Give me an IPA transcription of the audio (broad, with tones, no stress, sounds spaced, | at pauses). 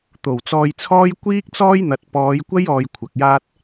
t̪ o˨˩ w t͡s ɔː˧ j t͡sʰ ɔː˥ j kʷ iː˥ k̚ t͡s ɔː˥ j n̪ ɐ˨ t̚ p ɔː˨˧ j kʷ ɐ˥ j ɔː˧ j kʷʰ ɐ˨ k̚ j aː˥ t̚